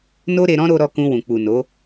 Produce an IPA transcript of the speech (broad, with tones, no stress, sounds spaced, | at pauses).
n o˦ ɾ e˧ ɾ ɔ̃˦ ɾ o˧ ɾ ɔ˧ k ũ˧ w ũ˨ k͡p u˨ n o˨˦